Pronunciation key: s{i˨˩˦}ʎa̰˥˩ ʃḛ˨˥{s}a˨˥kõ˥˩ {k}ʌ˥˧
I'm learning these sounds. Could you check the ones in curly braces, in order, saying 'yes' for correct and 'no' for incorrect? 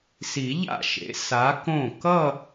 yes, yes, yes

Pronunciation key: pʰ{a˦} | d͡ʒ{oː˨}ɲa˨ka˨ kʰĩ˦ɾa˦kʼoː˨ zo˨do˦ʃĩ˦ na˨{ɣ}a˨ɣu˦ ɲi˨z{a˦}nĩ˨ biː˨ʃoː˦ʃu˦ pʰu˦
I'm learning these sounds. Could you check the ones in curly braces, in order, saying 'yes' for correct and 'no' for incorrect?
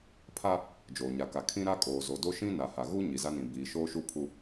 yes, yes, no, yes

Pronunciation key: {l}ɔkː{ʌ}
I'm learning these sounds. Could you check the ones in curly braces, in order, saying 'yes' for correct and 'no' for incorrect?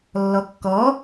no, no

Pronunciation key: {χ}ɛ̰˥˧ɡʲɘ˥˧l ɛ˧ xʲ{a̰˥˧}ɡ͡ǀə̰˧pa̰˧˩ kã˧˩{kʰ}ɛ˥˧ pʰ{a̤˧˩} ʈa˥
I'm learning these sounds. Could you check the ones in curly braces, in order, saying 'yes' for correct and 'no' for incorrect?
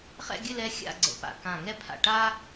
yes, yes, no, no

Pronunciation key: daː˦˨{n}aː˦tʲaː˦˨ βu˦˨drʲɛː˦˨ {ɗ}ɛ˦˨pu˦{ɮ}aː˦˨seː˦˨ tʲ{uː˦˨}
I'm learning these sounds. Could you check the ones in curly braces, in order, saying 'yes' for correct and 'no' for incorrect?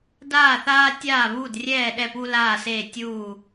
no, yes, no, yes

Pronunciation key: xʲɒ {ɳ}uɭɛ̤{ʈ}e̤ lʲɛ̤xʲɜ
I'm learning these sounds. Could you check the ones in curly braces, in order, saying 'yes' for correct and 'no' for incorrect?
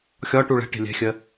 no, yes

